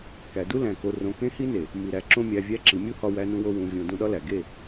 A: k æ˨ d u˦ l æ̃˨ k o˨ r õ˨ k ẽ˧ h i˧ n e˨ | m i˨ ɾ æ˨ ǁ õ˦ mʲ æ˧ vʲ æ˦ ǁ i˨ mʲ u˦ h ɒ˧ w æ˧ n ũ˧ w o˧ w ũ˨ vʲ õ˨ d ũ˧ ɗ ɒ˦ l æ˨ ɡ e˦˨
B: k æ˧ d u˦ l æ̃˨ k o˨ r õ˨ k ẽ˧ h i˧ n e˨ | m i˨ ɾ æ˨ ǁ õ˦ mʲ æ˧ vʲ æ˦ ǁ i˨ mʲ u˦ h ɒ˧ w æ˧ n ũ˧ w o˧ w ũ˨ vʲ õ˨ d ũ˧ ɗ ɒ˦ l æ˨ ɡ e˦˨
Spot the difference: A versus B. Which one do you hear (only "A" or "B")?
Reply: A